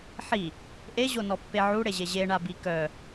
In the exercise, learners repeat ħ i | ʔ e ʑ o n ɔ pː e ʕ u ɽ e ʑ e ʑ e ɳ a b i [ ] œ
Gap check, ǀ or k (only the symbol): k